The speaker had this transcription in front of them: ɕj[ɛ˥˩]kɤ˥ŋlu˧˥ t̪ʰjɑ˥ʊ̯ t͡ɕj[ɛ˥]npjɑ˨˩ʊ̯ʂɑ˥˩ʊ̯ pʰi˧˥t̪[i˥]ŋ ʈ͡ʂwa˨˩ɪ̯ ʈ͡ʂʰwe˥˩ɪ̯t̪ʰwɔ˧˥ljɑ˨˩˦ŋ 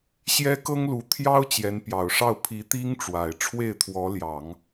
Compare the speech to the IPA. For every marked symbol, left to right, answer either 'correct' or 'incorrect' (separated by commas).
incorrect, incorrect, correct